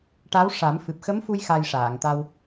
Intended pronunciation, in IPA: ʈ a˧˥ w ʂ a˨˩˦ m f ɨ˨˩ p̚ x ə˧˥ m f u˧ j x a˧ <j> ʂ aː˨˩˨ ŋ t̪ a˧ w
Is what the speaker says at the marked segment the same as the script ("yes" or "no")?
yes